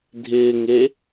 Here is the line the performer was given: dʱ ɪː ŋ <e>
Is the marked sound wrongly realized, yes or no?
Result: no